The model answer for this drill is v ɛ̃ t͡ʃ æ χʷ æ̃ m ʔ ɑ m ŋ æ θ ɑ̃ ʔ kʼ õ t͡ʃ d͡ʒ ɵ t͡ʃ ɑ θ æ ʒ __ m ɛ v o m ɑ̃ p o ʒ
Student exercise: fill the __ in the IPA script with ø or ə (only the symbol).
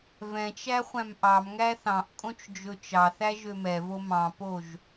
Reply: ø